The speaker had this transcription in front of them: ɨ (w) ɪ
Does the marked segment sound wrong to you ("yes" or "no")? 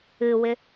no